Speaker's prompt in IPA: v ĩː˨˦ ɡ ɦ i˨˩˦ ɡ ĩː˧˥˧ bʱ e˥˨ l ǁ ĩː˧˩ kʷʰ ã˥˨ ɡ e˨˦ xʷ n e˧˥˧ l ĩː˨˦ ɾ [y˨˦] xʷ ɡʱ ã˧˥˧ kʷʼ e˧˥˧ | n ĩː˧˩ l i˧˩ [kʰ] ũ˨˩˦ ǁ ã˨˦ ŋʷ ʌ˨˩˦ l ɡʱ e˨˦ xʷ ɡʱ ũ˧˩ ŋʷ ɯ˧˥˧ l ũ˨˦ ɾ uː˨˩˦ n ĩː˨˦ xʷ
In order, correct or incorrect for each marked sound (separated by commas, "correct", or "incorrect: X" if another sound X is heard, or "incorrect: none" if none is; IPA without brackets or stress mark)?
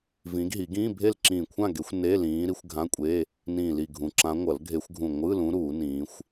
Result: incorrect: i˨˦, incorrect: ɡʱ